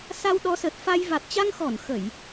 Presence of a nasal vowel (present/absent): absent